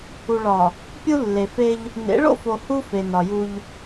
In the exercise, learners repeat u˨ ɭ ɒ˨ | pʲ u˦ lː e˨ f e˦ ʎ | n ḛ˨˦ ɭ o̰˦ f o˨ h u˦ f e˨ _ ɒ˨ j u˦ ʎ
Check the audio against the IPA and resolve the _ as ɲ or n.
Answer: n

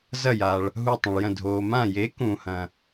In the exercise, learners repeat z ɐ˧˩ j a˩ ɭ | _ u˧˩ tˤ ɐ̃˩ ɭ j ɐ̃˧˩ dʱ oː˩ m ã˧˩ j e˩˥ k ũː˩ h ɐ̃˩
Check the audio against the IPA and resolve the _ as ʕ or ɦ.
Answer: ɦ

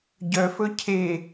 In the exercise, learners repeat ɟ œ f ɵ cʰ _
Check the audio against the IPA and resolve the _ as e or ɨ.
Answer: e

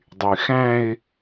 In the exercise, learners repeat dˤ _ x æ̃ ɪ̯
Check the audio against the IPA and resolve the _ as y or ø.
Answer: y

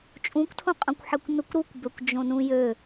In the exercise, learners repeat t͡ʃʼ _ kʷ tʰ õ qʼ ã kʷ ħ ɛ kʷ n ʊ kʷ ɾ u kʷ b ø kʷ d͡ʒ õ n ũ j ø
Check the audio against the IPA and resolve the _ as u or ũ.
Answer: ũ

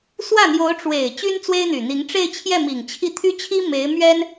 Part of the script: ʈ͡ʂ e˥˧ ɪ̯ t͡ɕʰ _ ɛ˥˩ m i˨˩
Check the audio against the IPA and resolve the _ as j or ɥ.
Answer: j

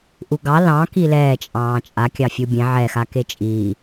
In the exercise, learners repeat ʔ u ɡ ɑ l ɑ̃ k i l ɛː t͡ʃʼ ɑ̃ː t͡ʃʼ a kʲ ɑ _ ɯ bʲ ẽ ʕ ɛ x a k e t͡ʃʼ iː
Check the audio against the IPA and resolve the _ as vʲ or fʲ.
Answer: fʲ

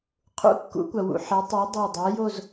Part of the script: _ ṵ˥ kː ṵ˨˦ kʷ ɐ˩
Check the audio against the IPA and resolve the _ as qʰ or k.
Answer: qʰ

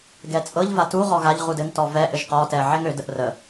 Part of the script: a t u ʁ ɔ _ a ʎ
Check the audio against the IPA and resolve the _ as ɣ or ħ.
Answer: ɣ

